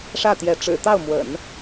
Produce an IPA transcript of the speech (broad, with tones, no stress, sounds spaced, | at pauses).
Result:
ʂ ä˥˩ t̪ j ɛ˧˥ ʈ͡ʂ ɻ̩˨˩ t̪ ɑ˥˩ ʊ̯ m w ə̰˨˩˦ n